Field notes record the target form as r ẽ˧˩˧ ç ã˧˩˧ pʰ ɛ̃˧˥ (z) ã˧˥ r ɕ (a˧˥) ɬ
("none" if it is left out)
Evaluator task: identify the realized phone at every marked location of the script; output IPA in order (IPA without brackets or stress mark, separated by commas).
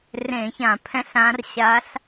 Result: ɬ, a˧˥